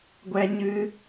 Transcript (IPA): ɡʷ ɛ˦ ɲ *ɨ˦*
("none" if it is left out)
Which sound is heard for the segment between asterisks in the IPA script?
ɨ˦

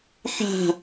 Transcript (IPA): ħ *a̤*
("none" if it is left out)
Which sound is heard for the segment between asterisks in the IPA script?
a̤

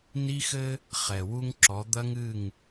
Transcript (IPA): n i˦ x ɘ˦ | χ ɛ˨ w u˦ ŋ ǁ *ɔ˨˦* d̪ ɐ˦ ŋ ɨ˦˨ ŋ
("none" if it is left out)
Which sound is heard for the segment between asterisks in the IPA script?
ɔ˨˦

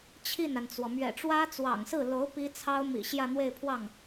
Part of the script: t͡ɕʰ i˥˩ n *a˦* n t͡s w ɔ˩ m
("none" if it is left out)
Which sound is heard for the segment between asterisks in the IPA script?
a˩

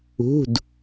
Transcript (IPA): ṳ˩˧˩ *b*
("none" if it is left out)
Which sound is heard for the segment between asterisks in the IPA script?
d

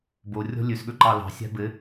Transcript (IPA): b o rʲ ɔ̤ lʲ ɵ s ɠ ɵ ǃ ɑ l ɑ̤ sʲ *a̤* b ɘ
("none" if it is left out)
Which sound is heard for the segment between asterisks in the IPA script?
a̤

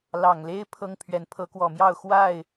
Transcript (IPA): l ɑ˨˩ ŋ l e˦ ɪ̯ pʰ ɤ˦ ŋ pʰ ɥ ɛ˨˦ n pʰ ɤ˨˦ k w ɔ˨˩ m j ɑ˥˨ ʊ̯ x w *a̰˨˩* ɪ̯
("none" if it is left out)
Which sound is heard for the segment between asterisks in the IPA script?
a˥˨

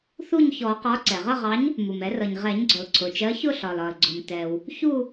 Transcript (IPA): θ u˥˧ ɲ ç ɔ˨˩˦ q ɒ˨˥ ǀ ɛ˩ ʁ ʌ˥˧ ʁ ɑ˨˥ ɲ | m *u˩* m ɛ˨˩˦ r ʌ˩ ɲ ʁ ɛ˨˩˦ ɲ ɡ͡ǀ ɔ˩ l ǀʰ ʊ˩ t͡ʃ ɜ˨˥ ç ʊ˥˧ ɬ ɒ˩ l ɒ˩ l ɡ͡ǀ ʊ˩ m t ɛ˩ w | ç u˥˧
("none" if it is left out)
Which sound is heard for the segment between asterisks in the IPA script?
u˩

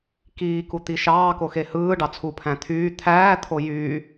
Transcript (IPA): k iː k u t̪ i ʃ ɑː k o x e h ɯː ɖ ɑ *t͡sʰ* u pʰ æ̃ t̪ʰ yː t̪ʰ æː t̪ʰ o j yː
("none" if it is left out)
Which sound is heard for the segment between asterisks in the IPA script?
t͡sʰ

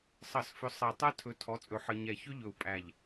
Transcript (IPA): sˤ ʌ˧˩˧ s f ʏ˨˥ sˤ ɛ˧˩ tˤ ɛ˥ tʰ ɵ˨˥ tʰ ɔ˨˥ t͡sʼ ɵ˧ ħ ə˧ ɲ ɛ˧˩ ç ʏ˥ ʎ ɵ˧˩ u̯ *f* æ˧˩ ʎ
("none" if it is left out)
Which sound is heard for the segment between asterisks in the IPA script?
pʼ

